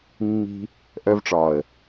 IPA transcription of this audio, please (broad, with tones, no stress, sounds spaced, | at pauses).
mː i̤˧ | ʔ œ˧ v ʈ͡ʂ ɒ˨ ə̯